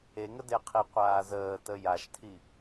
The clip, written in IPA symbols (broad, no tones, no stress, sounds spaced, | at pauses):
e ŋ ə d e qʰ i qʷ aː z əː t ə j a ʃ tʰ i